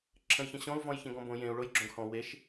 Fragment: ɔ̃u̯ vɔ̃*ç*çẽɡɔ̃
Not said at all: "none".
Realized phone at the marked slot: j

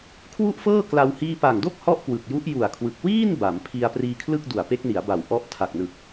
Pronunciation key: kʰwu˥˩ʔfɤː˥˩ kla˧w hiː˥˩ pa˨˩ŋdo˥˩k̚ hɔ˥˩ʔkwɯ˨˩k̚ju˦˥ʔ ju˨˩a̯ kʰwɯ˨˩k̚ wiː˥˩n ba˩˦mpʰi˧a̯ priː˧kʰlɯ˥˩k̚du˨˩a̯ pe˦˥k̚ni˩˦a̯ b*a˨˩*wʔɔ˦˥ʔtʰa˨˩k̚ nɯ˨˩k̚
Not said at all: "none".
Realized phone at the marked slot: a˨˩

